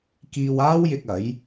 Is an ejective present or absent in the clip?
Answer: absent